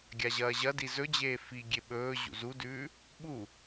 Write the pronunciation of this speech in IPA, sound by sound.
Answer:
ɡʲaʑɐːʑɐdi zɵd͡ʑeː fiɡʲe ɓɵː ʑṵzudʉː | ɓu

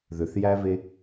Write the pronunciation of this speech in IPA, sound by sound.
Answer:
ðʏθjæve

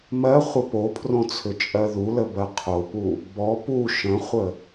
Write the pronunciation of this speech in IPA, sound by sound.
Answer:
mɜ χʷəpopʰrõ t͡sʰʏt͡ʃʼɜðulə bɜqʰopu | bɔ pu ʃə̃χʷə

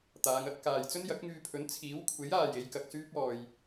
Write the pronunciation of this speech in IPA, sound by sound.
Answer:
t̪aː˨˧ŋɐ˥t̚kaː˨j t͡sɵ˥njɐ˨˥k̚ŋyː˧pʰɵ˨˥n t͡sʰiː˨˥wkʷʰe˨˥jaː˨ je˨˧jkɐ˧k̚syː˥p̚ɔː˨j

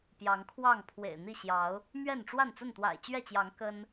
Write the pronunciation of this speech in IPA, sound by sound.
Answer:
pjɑ˨˦ŋkʰwɑ˥˨ŋ pʰwḛ˨˩ɪ̯n̪i˥˨ ɕjɑ˨˦ʊ̯ | mɥɛ˥˨nʈ͡ʂwa˥˨n t͡sə˥˨nt̪wa̰˨˩ɪ̯t͡ɕɥɛ˥˨t͡ɕjɑ˨˦ŋ kə˦n

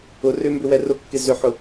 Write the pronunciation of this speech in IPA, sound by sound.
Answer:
ʊ rʏmbʏ wɛrʊkːɪ zʏħʊ

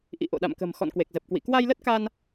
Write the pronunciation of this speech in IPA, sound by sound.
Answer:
ʔḭ˧˨ ʔo̰˧˨ɗa̰˧˨mkə̤˨˩m xɔ̰˧˨nkwe˨˩k̚zə˨˩p̚kwḭ˧˨ kwa˧jlə˦˥t̚ka˧n

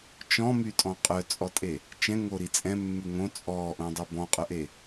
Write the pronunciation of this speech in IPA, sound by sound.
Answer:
t͡ʃɔ̃mytʼɔ̃ qʼœt͡sʼɔtʼe | t͡ʃɛ̃ŋoɾi t͡sʼɛ̃mːʉ ŋõ t͡sʼɔːʔõdˤø bɔ̃qʼœʔe

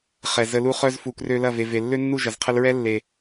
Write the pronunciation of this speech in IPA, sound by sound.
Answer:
χɛ˨zə˧lu˦χœ˦z fu˨krø˧lɐ˦˨ve˨ ve˨lːø˦nːu˦˨ ʒɐ˨zqʰə˧lɹɛ˦ lːe˨

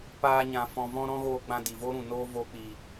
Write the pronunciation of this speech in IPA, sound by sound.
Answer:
paː˧ɲã˨ fɔ̃˨vɔ̃˧ ɾɔ̃˧ɣoː˨ɡ͡bã˨ di˨vo˦ɾũ˨ noː˧ vo˧k͡pi˨

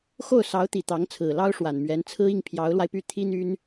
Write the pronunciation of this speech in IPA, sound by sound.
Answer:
xo˥˩ʊ̯sɑ˧˥ʊ̯t̪i˨˩ t̪ɑ˧˥ŋt͡sʰɹ̩˨˩ lɑ˥ʊ̯ʂwa˨˩nmɥɛ˧˥nt͡sʰɹ̩˥ i˥˩ŋpʰjɑ˧˥ʊ̯lwa˧ɪ̯py˥˩ t̪ʰi˥n̪y˥n

